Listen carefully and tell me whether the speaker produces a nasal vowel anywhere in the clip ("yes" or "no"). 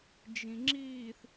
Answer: yes